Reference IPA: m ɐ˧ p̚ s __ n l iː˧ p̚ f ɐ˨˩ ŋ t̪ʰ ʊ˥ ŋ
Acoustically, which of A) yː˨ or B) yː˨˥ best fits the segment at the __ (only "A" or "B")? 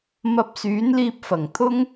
B